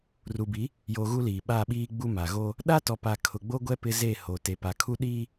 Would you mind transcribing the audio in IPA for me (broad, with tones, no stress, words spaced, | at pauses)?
ru˨bi˨˦ | jo˨ ɣu˦liː˨ ɓa˦˨ɓiː˦ ɡ͡bu˦ ma˨ ɣo˦ | ɗa˦tɔ˨pa˨ kʰʊ˨ɡ͡bo˦ɡʷɛ˦ pɪ˦ze˦˨ho˨ te˨pa˨kʰu˦ ɗiː˦